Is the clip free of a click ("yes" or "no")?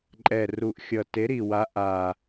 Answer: no